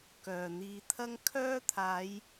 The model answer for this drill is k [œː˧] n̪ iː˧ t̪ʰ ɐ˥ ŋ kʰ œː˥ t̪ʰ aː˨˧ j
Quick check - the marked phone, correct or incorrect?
incorrect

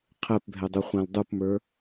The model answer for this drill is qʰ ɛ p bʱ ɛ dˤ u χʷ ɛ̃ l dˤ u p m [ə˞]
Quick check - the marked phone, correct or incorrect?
correct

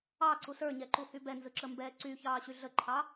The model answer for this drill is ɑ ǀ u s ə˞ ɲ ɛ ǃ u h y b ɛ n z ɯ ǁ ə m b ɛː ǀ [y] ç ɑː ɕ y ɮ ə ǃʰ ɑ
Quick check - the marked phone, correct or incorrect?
correct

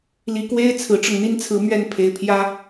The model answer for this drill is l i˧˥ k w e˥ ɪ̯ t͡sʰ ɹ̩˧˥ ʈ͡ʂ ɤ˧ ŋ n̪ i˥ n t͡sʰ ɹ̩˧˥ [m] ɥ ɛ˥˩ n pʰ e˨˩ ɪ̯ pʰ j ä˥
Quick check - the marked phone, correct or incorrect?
correct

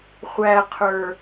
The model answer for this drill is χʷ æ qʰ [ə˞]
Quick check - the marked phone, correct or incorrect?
correct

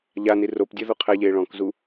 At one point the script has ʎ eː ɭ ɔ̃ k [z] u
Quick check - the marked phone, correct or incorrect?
correct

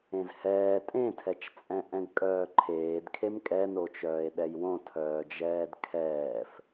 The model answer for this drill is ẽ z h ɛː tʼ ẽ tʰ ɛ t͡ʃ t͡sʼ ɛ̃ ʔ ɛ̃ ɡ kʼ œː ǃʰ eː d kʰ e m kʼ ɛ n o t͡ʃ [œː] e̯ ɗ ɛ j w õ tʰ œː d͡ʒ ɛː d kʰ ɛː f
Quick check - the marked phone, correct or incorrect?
correct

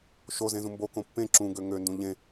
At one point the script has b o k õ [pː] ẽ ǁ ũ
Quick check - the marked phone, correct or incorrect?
correct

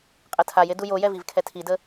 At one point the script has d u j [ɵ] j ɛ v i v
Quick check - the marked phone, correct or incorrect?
incorrect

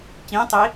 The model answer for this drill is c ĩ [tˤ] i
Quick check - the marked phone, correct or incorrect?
correct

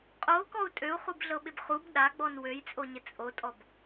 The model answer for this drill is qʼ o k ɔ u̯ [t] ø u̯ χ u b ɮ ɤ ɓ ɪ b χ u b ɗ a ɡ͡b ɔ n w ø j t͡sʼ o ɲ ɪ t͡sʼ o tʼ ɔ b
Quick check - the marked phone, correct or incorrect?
incorrect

